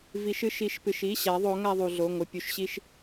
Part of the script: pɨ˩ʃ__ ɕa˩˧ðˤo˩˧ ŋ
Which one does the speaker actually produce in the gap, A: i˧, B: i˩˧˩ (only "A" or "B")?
B